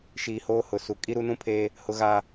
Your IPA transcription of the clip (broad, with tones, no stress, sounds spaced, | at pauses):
ʃ iː˨ h oː˦ h ʊ˨ s u˨ kʼ i˦ ɾ u˦ n ũ˦ pʰ eː˦ | h ʊ˦ ɣ aː˦